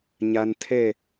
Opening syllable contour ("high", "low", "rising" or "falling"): low